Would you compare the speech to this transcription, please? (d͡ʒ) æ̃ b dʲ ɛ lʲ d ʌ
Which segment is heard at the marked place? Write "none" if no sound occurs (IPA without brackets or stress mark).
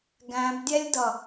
ɡ